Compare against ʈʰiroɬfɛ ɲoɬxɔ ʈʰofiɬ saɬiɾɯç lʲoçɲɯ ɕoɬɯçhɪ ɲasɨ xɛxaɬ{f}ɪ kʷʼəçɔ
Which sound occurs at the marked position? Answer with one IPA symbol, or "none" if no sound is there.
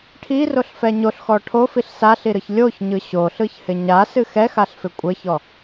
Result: f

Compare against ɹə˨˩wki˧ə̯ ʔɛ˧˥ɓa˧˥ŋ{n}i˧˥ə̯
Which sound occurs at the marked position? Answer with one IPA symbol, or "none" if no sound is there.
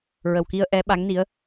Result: n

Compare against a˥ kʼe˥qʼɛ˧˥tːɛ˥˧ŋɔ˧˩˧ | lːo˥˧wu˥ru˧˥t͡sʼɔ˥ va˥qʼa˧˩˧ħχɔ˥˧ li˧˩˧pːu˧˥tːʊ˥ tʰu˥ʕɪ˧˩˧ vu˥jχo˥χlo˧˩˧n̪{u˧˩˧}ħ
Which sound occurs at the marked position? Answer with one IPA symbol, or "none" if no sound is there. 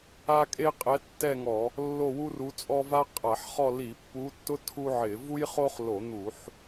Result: u˧˩˧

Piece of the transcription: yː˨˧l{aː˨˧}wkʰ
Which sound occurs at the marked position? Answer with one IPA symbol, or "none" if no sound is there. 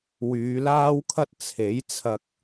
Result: aː˥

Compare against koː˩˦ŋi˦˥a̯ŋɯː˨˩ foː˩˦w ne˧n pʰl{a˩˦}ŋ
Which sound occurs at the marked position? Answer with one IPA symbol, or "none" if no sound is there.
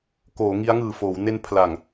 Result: a˨˩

